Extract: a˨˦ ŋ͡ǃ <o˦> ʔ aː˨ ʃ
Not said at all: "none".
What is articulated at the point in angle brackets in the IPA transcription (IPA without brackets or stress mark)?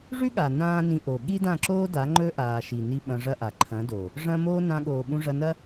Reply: ɵ˦